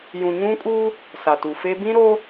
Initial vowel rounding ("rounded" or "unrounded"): rounded